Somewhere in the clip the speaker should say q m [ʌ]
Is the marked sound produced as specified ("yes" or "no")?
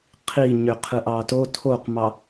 no